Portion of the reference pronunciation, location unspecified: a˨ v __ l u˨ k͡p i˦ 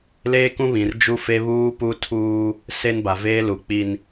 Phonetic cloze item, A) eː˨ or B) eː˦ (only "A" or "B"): B